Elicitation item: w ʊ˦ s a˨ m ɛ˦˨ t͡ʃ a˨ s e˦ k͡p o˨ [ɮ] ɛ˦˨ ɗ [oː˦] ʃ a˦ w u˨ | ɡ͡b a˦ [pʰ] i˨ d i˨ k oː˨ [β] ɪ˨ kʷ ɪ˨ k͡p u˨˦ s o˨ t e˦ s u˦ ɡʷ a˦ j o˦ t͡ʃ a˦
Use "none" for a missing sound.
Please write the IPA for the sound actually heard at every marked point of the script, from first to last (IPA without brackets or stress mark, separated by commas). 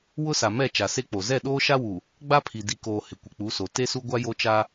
z, oː˦, pʰ, h